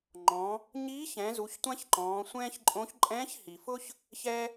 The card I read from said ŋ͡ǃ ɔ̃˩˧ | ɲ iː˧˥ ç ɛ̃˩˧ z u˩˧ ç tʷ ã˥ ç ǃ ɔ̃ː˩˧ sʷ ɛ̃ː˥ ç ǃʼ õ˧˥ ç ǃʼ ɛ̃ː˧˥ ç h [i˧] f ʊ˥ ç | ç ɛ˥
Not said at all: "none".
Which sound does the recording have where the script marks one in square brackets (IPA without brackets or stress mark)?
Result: i˩